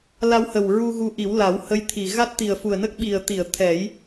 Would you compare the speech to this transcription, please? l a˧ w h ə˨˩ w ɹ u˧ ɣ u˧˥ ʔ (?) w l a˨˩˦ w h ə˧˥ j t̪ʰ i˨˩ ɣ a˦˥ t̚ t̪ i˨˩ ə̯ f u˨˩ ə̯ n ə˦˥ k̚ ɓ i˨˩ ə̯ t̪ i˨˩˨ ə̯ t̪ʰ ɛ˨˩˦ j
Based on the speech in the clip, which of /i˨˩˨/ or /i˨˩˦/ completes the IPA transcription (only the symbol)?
i˨˩˦